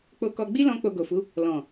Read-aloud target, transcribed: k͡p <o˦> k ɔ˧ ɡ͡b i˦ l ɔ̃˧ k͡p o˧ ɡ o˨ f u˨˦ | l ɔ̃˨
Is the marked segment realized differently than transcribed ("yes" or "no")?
yes